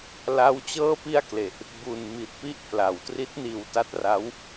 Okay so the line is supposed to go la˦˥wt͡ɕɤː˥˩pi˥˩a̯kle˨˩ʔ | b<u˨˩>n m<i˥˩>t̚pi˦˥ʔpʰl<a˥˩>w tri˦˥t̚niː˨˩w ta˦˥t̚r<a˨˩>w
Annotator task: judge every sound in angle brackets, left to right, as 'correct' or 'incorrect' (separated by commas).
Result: correct, incorrect, incorrect, incorrect